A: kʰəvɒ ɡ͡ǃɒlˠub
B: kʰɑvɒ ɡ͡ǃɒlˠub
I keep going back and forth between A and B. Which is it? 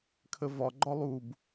A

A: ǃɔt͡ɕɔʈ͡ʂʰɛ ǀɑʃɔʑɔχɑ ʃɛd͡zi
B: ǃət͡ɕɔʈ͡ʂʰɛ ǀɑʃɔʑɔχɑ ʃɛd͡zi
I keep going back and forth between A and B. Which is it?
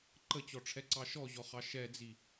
B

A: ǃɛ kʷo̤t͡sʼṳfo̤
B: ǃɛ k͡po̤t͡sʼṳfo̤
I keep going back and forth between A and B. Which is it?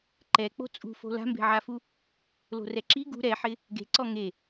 B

